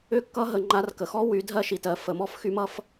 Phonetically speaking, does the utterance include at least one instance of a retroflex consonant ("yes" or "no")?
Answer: no